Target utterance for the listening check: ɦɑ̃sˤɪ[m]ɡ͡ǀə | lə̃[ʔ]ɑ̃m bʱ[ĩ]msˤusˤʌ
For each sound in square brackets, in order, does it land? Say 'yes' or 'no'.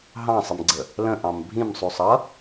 yes, yes, yes

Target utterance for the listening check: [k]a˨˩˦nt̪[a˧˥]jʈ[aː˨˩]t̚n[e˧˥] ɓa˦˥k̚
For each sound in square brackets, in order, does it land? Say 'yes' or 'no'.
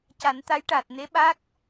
no, yes, yes, yes

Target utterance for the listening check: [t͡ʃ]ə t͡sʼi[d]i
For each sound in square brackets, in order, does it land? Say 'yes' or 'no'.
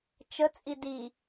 yes, yes

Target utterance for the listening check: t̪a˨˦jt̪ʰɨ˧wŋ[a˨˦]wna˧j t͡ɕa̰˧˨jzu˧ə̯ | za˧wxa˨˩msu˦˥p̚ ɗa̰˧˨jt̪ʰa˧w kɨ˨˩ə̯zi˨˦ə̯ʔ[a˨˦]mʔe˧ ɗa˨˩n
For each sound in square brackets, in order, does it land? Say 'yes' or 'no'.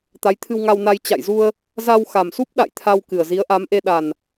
no, yes

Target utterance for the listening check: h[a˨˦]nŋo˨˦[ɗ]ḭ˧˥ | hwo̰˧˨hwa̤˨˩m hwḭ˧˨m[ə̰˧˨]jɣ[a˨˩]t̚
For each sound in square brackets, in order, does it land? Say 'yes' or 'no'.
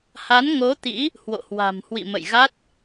yes, no, yes, no

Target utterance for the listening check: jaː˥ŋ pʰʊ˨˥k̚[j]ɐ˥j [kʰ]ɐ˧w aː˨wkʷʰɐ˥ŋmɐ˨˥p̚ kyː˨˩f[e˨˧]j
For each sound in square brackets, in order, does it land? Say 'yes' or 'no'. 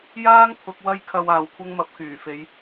no, yes, yes

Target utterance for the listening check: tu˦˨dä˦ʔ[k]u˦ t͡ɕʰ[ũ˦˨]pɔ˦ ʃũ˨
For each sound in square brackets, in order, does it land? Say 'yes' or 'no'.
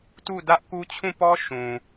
yes, yes

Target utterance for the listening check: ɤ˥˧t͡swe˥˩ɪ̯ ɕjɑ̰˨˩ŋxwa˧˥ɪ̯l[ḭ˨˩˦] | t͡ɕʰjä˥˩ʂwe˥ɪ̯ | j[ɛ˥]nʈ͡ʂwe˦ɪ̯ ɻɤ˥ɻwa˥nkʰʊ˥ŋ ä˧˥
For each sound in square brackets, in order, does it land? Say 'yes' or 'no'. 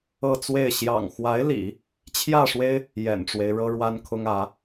yes, no

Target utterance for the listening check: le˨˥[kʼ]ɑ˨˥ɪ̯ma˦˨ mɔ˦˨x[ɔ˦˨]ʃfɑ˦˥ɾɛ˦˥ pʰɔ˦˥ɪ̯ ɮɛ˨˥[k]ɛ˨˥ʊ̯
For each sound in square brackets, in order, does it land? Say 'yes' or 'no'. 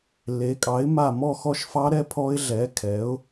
yes, yes, no

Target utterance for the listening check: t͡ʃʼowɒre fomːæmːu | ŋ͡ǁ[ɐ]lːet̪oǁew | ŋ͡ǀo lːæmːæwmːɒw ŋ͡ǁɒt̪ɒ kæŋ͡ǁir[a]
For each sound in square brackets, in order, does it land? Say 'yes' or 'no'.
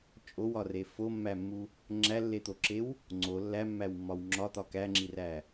no, no

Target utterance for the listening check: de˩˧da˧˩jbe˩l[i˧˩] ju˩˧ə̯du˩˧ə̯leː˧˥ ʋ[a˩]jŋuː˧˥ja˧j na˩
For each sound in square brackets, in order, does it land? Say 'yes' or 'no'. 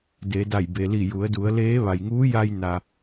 yes, yes

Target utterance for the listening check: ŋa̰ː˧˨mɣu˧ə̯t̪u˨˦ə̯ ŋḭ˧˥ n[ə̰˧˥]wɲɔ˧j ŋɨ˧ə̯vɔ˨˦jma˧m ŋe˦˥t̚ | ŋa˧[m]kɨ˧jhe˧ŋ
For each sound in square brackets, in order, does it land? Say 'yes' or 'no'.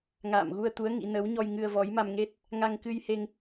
no, no

